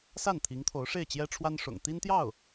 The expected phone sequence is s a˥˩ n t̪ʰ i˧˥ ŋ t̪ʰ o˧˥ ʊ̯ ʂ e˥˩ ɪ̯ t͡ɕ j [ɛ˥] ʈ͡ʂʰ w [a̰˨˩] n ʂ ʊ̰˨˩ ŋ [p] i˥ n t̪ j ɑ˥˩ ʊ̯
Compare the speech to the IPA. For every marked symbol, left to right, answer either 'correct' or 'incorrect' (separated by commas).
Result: correct, incorrect, incorrect